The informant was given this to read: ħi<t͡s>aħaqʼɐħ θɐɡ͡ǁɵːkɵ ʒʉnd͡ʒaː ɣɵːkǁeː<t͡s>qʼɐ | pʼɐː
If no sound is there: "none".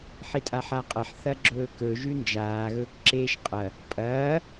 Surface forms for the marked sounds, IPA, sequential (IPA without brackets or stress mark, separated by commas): tʼ, ʃ